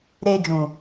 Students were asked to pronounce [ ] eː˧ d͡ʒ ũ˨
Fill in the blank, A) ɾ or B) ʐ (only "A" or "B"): A